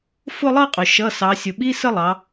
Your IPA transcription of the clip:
fʊ˥˧lˠʌ˥˧qʼʊ˩ ʃʌ˩˧˩ sɑ˩˧ sʲʊ˩ɓi˧˥˧ sə˥˧lˠɑ˩˧

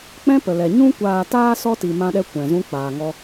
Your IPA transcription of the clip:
k͡pɛ̃˦pə˨lɛ˨ ɲũ˧kʷaː˨taː˧ sɔ˦ ti˨mã˧ɗɛ˧ kʷɛ̃˨zũ˦ k͡paː˨ŋɔ˧

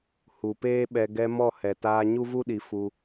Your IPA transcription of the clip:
hu˨peː˦ɓɛ˧ ɡɛ˧ mɔ˦˨hɛ˨taː˧ ɲu˦vu˦ɗi˨ fu˧

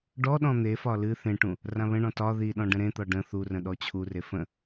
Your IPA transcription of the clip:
ɖɔɗɔ̃ n̪efɒ lɨ θẽʈũ | rãβə̃ɳɔ̃ tɒ ðiɗɔ̃ ɖə̃ɾẽt̪ɒ ɖə̃ θurə̃ ɗɔt͡ɕʰure fə̃

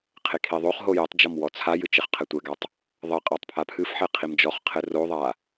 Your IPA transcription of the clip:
qʰekʰiðˤoχɦo jɛtˤd͡ʒɔm wɔt͡sʰajɨ t͡ʃɘχqʰɘtʷɛɡatˤ | ðˤɘ qʼatˤpʰapʰɨfħɛ qʰimd͡ʒɔχqʰɘ roðˤa

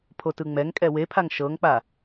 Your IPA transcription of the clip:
pʰotɯŋ͡mɛŋkʼɛ wepʰaŋ ʃɤŋk͡pa

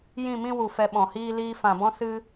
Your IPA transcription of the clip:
jĩ˦˨mĩ˦wu˨ fɛ˧ɓɔ̃˨hiː˦ liː˧fã˨bɔ̃˦sɨ˦

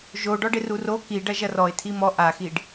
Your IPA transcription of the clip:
ʒoɖɔɖ ɪruro kiɖɐ ʒɐrɔɪ̯ tʰimɔ ʔaxiɖ

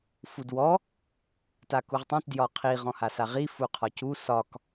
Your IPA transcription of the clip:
fudwɔ | takuʁtˤõt djɒqʰi ʁɔ̃hasaʁi fuqʰɒcu sɒk

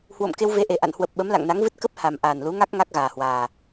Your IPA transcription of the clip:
hwo̰˧˨m ke˧wve˨˦ʔe˨˩ ʔa̰˧˨nhwə˨˩p̚ ɓə˨˦mla̰˧˨ŋna˨˦ŋvɨ˦˥t̚ kə˦˥p̚ ha˨˩m ʔaː˨˩nlu˨˦ŋa˦˥k̚ ŋa˦˥k̚ɣaː˨˩hwaː˨˩

